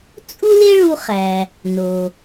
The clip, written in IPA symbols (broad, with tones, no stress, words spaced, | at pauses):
t͡sʼu˥le˥ɭu˧χæ˩ | no˩